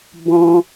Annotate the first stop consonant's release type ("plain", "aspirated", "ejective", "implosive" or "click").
plain